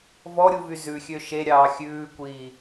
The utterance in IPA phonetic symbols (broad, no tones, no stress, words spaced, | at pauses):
vɔɾʲuvy zʉxʲø ʃeɾʲɑː xʲʉːkʷiː